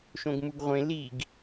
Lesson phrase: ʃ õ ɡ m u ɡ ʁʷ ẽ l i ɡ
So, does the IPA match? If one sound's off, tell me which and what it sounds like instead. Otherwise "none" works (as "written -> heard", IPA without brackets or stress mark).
none